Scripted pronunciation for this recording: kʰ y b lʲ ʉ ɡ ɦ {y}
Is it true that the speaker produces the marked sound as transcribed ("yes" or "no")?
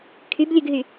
yes